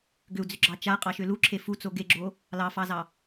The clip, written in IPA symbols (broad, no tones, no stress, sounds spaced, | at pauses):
ɡ ʏ u̯ d͡z ʏ ɡ͡ǁ ɑ t͡ʃ a qʼ ɑ ʃ ʏ l u ǁʰ e f u t͡s o ɡ e ɡ͡ǁ o | l ɑ f ɑ z ɑ